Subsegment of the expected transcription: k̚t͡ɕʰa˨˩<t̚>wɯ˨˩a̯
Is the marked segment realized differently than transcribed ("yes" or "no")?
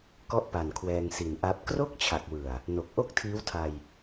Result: yes